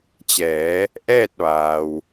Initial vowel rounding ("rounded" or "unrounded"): unrounded